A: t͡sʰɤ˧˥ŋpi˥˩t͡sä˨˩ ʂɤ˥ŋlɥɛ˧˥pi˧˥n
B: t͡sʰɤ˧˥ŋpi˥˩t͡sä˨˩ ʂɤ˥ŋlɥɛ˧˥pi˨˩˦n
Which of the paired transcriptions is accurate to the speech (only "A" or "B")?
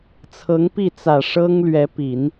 B